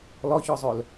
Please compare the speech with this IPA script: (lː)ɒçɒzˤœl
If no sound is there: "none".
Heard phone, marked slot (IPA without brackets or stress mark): l